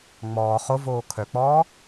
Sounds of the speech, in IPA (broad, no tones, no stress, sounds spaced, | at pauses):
ŋ͡m ɔː χ o v oː kʰ œ k͡p ɔː